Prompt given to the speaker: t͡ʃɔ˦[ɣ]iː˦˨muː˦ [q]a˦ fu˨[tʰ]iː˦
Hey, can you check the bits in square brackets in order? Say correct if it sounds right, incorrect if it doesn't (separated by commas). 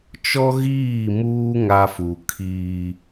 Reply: correct, incorrect, incorrect